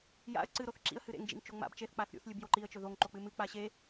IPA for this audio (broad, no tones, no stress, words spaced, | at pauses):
ja̰ə̯ ǀɨ ɾoθǁḭə̯ hɨɾḛŋ d͡ʒḭŋt͡ʃoŋ͡ma̰b t͡ʃeθ k͡paθɾʲṵθ lʲɨbjoǃiə̯ t͡ʃɵðoŋ ǃok͡pɨmɨ k͡paɕe